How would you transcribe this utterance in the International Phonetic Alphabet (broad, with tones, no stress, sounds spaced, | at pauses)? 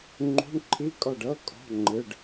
ŋ͡ǃ ṳ˧˥˧ ɳ ǃʰ i˧˥˧ kʼ ɔ˦˨ ɖ ɤ˧˥˧ kʼ ɔ̤˧˥˧ ŋ͡ǃ ɯ˧˥˧ ɖ